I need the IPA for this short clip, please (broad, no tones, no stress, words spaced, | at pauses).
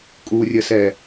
kʼurʲəsɛ